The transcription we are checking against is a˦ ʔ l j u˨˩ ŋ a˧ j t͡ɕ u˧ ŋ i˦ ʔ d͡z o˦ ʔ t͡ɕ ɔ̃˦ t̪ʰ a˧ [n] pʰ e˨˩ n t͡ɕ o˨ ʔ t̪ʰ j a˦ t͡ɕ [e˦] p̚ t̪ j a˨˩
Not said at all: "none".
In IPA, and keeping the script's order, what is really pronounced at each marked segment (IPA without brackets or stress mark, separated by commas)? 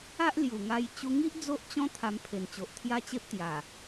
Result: m, e˦